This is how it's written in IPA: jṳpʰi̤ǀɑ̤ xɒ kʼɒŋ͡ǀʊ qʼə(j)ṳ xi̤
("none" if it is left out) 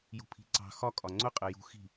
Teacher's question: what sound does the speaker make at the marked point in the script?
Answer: j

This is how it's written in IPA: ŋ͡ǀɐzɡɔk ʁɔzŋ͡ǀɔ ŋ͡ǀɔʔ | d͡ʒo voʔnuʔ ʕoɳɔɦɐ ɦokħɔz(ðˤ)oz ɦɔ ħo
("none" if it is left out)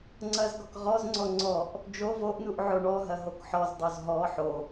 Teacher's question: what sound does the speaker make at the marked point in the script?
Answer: dˤ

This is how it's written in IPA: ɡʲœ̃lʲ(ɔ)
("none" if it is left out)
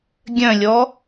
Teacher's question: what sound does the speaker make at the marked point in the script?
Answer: ɔ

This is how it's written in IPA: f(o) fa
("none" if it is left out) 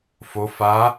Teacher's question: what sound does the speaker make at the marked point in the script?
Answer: o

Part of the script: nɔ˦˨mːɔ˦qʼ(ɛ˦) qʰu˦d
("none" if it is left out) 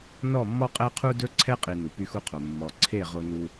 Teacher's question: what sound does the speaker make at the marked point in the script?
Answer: ɛ˦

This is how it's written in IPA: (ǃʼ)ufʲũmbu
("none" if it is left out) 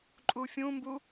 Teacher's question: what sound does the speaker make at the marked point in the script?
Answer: ǃʼ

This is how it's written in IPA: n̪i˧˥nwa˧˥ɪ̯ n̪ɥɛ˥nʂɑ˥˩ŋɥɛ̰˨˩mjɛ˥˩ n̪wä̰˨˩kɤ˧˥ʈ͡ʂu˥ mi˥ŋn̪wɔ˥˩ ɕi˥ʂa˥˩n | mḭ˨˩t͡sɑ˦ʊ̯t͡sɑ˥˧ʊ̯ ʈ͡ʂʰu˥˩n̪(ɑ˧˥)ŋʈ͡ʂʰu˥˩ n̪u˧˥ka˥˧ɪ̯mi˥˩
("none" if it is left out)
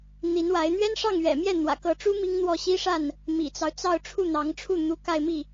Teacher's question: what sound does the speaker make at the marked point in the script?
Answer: ɑ˧˥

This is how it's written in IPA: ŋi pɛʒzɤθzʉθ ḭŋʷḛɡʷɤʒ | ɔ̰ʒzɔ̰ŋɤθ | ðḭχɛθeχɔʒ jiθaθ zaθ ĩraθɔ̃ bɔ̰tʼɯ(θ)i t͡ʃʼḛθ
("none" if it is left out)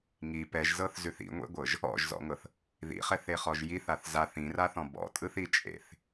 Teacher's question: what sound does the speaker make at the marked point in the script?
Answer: θ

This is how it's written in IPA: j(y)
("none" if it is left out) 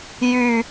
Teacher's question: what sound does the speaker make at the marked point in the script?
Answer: y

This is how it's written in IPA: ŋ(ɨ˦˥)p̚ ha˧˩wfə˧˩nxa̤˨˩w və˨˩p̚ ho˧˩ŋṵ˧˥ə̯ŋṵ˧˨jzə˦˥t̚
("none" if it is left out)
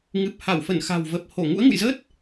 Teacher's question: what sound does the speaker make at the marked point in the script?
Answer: ɨ˨˩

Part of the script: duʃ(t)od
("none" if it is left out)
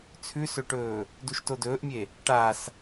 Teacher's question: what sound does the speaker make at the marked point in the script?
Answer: t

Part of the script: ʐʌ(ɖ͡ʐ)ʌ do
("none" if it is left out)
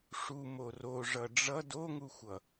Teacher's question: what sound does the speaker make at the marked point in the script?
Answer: ɖ͡ʐ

